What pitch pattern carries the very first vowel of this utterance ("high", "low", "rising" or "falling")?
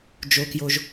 low